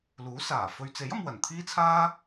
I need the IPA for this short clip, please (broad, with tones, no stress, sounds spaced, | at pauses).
l uː˨˥ s aː˨˩ f ɵ˨ ɥ t͡s e˨˥ j ɐ˧ m w ɐ˨˩ n t̪ʰ iː˥ t͡sʰ aː˥